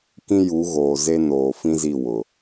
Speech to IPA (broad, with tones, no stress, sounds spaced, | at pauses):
k ĩ˦ j u˨˦ ɣ oː˨ z e˦ n oː˨ f ĩ˦ z i˦˨ w ʊ˨